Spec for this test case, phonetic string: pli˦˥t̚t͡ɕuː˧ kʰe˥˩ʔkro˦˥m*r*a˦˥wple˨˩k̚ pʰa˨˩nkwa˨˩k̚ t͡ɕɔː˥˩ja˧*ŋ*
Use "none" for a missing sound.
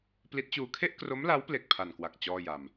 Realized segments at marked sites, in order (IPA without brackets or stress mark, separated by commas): l, m